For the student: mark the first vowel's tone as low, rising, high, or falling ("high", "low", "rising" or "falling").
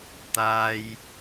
low